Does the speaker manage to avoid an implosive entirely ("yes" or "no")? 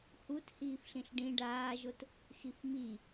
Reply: yes